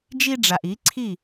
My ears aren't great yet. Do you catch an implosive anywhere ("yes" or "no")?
no